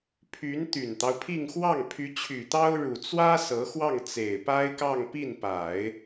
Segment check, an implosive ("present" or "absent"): absent